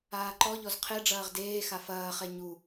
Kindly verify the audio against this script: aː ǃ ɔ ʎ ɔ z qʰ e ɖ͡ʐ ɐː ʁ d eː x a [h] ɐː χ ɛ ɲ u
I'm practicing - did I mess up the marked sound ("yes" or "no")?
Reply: yes